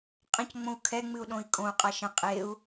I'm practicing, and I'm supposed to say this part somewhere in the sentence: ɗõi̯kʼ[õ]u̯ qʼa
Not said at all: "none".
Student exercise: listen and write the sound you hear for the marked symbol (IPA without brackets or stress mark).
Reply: õ